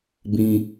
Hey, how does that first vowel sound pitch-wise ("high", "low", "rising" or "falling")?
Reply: high